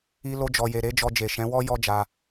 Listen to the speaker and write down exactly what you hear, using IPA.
i˧ lo˧d͡ʒɔ˨je˨ ɾe˨˦d͡ʒɔ˧d͡ʒe˨ ʃɛ̃˨˦ wɔ˦ jɔ˦d͡ʒa˧

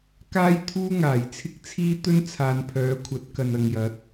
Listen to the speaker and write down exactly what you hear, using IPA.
kaː˥jt̪ʰuː˥ŋaː˨˩j t͡sʰɪ˥k̚t͡sʰiː˥t̪ɵ˥n t͡sʰaː˨˧npʰœː˨˥kʷʰɐ˨˥t̚ kɐ˨nɐ˨ŋjɐ˨˥t̚

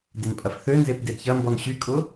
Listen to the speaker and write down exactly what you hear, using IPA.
denpʼɐfθønzep dedçɐmbɔn ɕykʼʊ

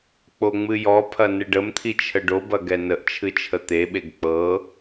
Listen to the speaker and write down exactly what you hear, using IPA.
k͡poŋ͡mɨjɔpʰɐ nɨɖəmt̪ʰi t͡ʃʰəɖobɐ ɡɛnəʔt͡ʃʰɨ t͡ʃʰət̪eɓeɡ k͡pɤ

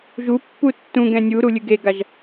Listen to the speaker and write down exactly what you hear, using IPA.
ʒupːu tːũɡɛ̃ nʲuɾu lʲɨɡeɡaʒ

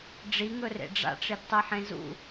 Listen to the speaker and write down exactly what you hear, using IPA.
ɖ͡ʐiŋɵrḛ ɖ͡ʐa̰ʈ͡ʂedtˤiħẽ zṵ

